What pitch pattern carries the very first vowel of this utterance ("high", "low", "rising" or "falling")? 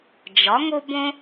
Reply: rising